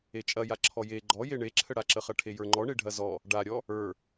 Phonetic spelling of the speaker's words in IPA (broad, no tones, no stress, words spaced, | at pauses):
et͡ʃʼɐjaǁʰɔ je ɡ͡ǃɔje ɳeǁʰəɽaǁə χɐʈʰejə˞ŋ͡ǃɔ ɳeɖʱɐzɔ | ɖaɾʲɔ | ə˞